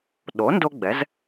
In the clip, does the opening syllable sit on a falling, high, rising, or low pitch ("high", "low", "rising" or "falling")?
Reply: rising